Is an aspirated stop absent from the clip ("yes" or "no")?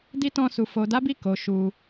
yes